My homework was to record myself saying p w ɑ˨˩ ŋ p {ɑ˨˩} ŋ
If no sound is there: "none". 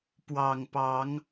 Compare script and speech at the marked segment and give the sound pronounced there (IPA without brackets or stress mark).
ɑ˨˦